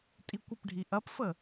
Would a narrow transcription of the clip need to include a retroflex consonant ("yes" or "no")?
yes